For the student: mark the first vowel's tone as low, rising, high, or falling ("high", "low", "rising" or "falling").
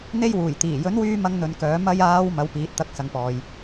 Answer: high